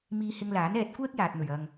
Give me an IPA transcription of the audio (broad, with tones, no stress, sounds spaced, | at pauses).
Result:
m iː˧ h ɪ˧ ŋ l aː˨˥ n ɛː˧ t̚ kʷ ɛː˥ k̚ j aː˨ t̚ n̪ ɵ˨˩ ɥ ɐ˨ ŋ